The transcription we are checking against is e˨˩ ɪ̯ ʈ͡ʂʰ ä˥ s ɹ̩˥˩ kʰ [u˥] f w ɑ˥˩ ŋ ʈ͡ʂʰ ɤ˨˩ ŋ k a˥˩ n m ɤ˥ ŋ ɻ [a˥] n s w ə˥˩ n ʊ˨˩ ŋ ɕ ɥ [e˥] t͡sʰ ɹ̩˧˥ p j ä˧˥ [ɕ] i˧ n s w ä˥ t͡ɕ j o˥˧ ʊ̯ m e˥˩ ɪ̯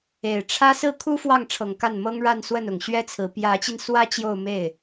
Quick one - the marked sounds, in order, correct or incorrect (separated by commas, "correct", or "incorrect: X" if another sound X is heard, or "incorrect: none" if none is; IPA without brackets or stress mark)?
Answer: correct, incorrect: a˥˧, incorrect: ɛ˥, incorrect: t͡ɕ